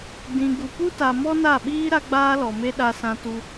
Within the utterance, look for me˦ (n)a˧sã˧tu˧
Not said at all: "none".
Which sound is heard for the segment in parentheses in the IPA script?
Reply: ɗ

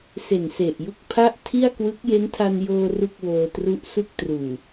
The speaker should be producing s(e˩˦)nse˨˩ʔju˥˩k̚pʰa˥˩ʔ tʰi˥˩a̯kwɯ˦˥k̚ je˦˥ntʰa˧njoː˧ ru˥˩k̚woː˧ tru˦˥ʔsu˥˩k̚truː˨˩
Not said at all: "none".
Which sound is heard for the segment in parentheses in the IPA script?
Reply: e˨˩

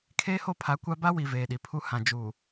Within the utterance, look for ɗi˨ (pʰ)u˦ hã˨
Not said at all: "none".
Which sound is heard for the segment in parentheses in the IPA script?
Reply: pʰ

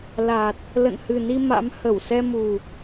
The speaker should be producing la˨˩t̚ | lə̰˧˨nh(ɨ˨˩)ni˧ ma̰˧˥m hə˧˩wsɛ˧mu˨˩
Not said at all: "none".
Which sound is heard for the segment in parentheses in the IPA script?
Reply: ɨ˨˩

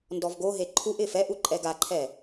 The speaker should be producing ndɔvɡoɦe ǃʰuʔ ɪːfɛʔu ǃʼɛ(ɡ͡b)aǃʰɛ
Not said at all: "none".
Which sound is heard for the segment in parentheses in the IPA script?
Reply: ɡ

